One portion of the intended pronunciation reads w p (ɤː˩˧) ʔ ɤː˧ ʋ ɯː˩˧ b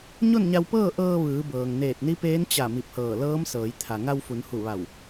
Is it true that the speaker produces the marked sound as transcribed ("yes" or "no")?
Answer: no